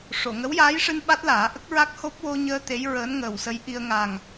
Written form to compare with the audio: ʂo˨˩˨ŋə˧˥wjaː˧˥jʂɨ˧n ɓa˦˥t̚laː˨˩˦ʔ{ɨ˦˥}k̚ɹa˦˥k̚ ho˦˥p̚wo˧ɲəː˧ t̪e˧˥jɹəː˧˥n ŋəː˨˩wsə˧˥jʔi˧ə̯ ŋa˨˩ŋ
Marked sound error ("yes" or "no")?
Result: yes